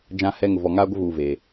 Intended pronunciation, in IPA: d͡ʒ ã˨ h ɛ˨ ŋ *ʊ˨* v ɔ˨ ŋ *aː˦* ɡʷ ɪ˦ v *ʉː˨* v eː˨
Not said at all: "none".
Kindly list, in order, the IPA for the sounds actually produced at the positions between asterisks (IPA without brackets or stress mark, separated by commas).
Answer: ʊ˨, aː˦, uː˨